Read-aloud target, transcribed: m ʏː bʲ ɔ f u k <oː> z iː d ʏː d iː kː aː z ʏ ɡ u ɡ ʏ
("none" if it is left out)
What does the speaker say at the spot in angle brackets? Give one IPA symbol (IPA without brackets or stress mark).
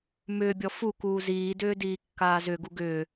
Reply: uː